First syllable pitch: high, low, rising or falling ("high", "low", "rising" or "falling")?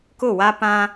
falling